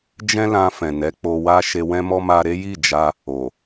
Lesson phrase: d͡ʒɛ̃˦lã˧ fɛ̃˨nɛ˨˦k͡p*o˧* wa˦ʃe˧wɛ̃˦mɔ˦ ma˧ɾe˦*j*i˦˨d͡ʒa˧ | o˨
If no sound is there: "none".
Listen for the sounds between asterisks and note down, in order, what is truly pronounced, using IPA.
o˧, j

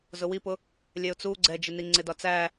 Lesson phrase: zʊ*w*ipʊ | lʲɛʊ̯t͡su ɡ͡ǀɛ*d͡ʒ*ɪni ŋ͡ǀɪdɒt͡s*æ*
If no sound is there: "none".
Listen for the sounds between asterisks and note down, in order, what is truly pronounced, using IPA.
w, d͡ʒ, æ

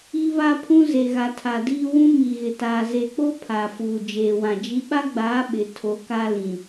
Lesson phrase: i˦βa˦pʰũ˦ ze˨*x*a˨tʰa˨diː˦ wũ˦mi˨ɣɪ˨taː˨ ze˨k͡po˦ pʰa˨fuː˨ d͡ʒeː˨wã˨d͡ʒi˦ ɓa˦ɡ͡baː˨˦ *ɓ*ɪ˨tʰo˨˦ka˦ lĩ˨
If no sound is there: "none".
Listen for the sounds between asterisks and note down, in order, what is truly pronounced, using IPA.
ɣ, ɓ

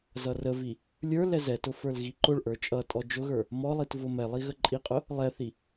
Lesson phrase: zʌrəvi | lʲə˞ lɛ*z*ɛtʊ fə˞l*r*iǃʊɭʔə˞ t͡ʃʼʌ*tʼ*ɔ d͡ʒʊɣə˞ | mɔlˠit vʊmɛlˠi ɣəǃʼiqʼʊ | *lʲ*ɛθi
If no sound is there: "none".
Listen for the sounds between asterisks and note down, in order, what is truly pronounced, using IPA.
z, ɣ, tʼ, lˠ

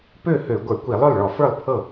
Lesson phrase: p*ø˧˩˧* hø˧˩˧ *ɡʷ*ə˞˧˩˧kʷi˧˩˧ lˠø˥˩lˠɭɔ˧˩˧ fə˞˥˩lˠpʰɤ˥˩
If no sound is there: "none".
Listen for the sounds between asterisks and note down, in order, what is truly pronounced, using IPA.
ø˥˩, ɡʷ

